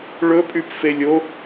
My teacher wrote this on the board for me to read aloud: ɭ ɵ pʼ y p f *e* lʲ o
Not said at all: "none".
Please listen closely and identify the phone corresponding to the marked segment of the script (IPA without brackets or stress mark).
e